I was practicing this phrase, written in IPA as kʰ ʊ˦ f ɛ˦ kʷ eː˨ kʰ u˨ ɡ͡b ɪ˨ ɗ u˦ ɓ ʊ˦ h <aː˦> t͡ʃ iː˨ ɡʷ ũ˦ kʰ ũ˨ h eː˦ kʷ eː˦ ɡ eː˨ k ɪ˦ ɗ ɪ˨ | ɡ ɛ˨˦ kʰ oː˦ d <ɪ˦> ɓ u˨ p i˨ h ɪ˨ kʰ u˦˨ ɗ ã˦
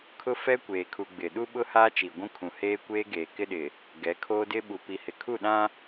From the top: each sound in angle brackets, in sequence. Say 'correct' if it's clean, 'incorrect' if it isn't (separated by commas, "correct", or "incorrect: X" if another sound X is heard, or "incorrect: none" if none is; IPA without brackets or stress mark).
correct, correct